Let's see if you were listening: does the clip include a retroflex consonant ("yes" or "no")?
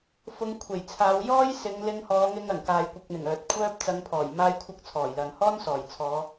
no